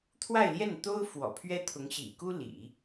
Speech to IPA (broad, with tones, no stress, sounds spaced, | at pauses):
t̪ʰ w a˥˧ ɪ̯ l j ɛ˥˩ n t̪ o˥ ʊ̯ f w ɔ̰˨˩ pʰ ɥ ɛ˥ t̪ʰ ʊ˧˥ ŋ ɕ ḭ˨˩ k u˥ l ḭ˨˩˦